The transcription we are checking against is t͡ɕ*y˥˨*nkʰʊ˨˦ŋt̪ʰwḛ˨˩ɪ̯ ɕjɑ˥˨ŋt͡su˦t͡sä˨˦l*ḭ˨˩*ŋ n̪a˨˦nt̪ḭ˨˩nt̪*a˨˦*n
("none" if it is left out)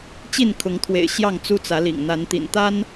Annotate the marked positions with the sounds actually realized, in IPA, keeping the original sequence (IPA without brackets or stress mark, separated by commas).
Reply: i˥˨, ḭ˨˩, a˦